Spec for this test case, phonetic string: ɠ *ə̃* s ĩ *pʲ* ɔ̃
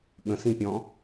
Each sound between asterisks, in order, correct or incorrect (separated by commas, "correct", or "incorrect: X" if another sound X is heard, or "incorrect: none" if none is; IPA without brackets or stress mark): correct, correct